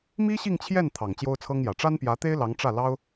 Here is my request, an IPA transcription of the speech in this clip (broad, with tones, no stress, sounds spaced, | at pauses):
m i˥ ɕ i˥˧ ŋ t͡ɕʰ j ɛ˥˩ n t̪ʰ ɑ˨˩ ŋ t͡ɕ j o˥ ʊ̯ t͡sʰ ɤ˥ ŋ j ä˨˩ ʈ͡ʂ a˥ n p j ä˧˥ t̪ e˥ ɪ̯ l ɑ˧˥ ŋ ʈ͡ʂ ä˥˩ l ɑ˥ ʊ̯